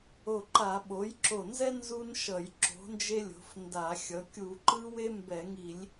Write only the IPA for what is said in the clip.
o˧˩ ǃ a˧˩˧ ɓ o˩˥ j ǁ o˧˩ n z ɛ˥ n z u˥ n ʃ ʌ˧˩˧ j ǁ o̤˩˥ n d͡ʒ e˥ lʲ o̤˩˥ f n d a˧˩˧ xʲ ʌ˩˥ kʲ u˧˩˧ ǃ ɯ˥ w e˥ m b ɛ˧˩˧ ŋ i˧˩˧ lʲ

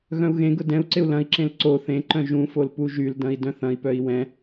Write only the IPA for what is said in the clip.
ɣ œ̃ u̯ ɣ ẽ ɡ ʊ d ɛ̃ u̯ ǀ ɪ u̯ l ɐ̃ i̯ ǁ ẽ l ǀ o θ ẽ ǃ œ̃ ʒ ũ f o l p u ʒ y l d ɐ̃ i̯ d œ̃ θ ɐ̃ i̯ p œ i̯ w ɛ̃

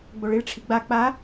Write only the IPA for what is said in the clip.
ɡ͡b o ɭ i ɭ ʈ͡ʂʰ i ɡ͡b a k͡p a

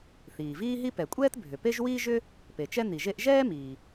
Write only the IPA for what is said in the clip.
θ iː˩ v iː˥ ɦ i˥ p ɛ˩ kʷʼ ɛː˥ t bʱ ʏ˩ p e˥ ʒ w iː˥ ʒ ʏ˥ | p e˩ t͡ʃ ɛ˥ n̪ i˩ ʒ e˥ ʔ ʒ ɛː˥ m iː˩

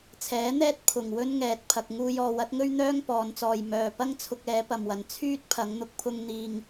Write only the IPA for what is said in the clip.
t͡sʰ ɛː˨˥ n̪ ɛː˥ t̚ pʰ ʊ˨˩ ŋ w ɵ˥ n ŋ ɛː˨ t̚ pʰ ɐ˧ k̚ ŋ uː˥ j ɔː˨ w ɐ˨˥ t̚ ŋ ɵ˥ ɥ n̪ œː˥ ŋ p ɔː˨˧ n t͡s ɔː˨ j m œː˨ p ɐ˥ ŋ t͡sʰ ʊ˧ k̚ ɛː˨˥ p ɐ˨ m w ɐ˨ n t͡sʰ yː˥ t̚ pʰ ɐ˨˥ ŋ n̪ ʊ˧ k̚ pʰ ʊ˥ ŋ n̪ iː˧ ŋ

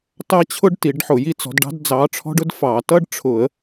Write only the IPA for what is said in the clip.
t ɑ˥ t͡ɕʰ ʊ˥ ɖ t i˨˩˦ ɖ ħ ʊ˨˩˦ j i˥ t͡s ɔ̤˨˥ d ɖ ɑ̤˥ d d͡z ɑ˨˥ ʈ͡ʂʰ ɔ̤˥ ɖ ʊ˥ d f ɑ˨˩˦ t ʌ˥ ɖ ʈ͡ʂʰ ʊ˨˩˦ ə̯

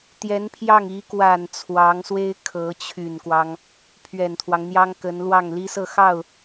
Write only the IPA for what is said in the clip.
t̪ j ɛ˧˥ n pʰ j ɑ˥˩ ŋ i˧˥ k w a˨˩ n t͡sʰ w ɑ˧˥ ŋ s w e˥ ɪ̯ kʰ ɤ˧˥ t͡ɕʰ y˨˩ n k w ɑ˦ ŋ | pʰ ɥ ɛ˨˩ n t̪ʰ w ɑ˦ ŋ n̪ j ɑ˥ ŋ k ə˧˥ n l w ɑ˥˩ ŋ l i˥ s ɤ˥˧ x ɑ˥˩ ʊ̯

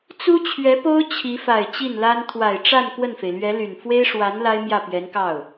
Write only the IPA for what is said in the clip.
t͡s u˥ t͡ɕʰ ɥ ɛ˧˥ p o˥ ʊ̯ t͡ɕʰ i˧˥ f a˨˩ ɪ̯ t͡ɕ i˥˩ n l a˥ n t̪ʰ w a˨˩ ɪ̯ ʈ͡ʂ a˥˧ n k w ə˥˩ n f e˩ ɪ̯ l ɥ ɛ˧˥ l y˨˩ n f w e˥ ɪ̯ ʂ w a˧˥ n l a˥ ɪ̯ m j ä˥˩ p ɥ ɛ˧˥ n k ɑ˥˩ ʊ̯

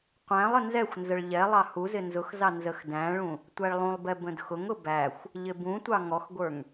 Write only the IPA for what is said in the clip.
qʷ æ̃ lˠ ə n z ɛ xʷ n z ə ɭ ʎ ɛ lˠ ɑ h u z ɪ n z ʊ x z ɑ n z ə x d æ̃ ɭ ũ | tʷ æ ɭ lˠ ũ lˠ b ɛ b ə̃ d x ʊ ŋ ʊ b æ xʷ | ʎ ɪ b ũ tʷ ɑ ŋ ɔ x ɡʷ ə˞ ŋ

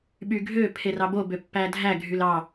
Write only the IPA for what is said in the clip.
ɓ y ɡʱ ø pʰ e r ɑ b o b ø pː æ dʱ æ ɡʱ y l ɑ

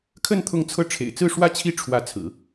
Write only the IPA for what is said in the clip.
kʰ ə˥˧ n t̪ʰ ʊ˥˧ ŋ t͡sʰ ɤ˥˩ ʈ͡ʂʰ ḛ˨˩ ɪ̯ t͡s ɹ̩˥˧ ʂ w ä˥˩ t͡ɕʰ i˥ ʈ͡ʂʰ w ä˧˥ t͡sʰ ɹ̩˨˩˦

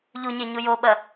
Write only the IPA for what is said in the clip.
ʎ u ɲ e ɲ u j o ɓ ɐ

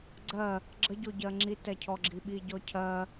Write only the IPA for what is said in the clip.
ɡ͡ǀ ɜ | ɡ͡ǁ ə ɟ o ɟ ɜ ŋ͡ǁ i t ɛ cʰ ɔ ɡ͡ǁ i ɓ i ɟ ɔ cʰ ɜ

